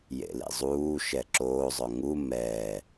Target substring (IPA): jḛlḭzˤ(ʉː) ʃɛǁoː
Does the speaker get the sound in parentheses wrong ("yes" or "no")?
yes